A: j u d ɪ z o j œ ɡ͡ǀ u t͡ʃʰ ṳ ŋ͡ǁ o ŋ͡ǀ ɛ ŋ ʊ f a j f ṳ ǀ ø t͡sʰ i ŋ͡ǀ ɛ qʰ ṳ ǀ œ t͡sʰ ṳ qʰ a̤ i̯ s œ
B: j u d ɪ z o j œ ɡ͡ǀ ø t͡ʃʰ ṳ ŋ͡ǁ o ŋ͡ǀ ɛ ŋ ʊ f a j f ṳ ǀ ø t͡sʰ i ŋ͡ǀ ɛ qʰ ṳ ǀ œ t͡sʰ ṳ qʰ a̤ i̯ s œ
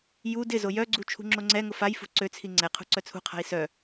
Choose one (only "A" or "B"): A